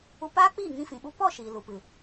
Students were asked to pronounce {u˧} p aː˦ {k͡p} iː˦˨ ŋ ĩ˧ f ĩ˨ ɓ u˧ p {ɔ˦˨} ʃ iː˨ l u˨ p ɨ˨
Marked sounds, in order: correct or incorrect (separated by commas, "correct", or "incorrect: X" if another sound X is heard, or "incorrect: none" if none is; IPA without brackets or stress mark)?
correct, correct, correct